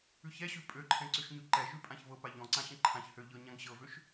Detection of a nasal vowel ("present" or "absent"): present